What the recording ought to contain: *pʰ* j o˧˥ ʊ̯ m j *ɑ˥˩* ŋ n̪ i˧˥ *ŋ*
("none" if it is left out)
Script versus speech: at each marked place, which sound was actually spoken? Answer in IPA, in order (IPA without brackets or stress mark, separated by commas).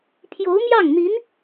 pʰ, ɑ˥˩, n